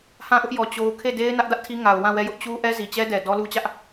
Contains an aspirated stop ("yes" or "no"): yes